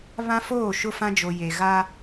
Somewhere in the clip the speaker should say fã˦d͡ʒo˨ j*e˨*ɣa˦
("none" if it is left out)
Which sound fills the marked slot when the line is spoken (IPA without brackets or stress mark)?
e˨